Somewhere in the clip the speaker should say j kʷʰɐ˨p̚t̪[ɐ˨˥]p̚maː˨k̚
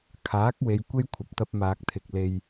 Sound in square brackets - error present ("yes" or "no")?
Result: yes